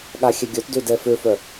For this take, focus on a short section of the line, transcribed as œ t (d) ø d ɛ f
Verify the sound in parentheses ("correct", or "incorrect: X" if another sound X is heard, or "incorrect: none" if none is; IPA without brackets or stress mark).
correct